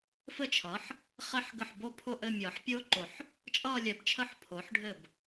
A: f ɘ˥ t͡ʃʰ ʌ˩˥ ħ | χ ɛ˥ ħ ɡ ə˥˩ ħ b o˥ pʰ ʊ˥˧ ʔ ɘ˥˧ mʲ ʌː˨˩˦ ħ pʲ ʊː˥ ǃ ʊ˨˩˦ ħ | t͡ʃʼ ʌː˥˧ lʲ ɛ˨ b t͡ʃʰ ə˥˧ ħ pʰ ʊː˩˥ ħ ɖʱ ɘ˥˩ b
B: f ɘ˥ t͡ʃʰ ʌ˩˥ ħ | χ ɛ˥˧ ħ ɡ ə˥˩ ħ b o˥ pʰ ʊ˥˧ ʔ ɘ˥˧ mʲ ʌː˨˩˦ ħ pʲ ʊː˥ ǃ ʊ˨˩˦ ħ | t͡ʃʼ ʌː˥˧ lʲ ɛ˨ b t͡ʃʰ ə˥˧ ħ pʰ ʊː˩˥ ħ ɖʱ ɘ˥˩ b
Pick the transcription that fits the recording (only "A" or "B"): A